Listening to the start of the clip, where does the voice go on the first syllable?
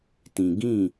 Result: low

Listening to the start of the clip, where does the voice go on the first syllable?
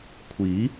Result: rising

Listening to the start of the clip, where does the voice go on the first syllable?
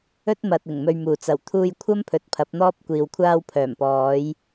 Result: high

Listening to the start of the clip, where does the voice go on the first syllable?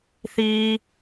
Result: high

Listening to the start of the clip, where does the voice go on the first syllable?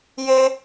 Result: high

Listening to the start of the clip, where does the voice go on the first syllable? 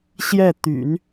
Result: falling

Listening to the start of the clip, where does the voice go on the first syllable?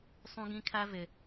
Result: high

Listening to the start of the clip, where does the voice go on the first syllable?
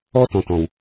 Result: high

